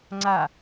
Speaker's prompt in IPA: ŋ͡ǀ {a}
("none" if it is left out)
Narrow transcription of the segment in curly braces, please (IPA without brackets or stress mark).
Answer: a